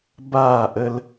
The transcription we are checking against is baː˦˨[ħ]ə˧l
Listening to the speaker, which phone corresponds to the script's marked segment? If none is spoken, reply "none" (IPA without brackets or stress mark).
ʔ